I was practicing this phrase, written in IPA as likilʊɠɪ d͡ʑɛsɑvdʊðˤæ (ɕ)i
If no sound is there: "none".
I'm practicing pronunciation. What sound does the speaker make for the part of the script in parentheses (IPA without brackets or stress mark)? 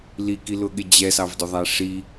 ʂ